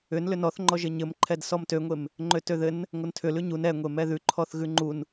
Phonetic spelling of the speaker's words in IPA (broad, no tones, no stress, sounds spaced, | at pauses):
ʏ n l ʏ n ɔ θ ŋ͡ǃ ɔ ʒ ɘ ɲ ɘ m ǃʰ ɛ d s ɔ m t ø ŋʷ e m | ŋ͡ǃ ø t ø ð ɘ n | ŋʷ ə n tʰ ʏ l ʉ ɲ u n ɛ ŋʷ e m ɛ ð ʉ ǃʰ ɔ θ ɣ ʉ ŋ͡ǃ u n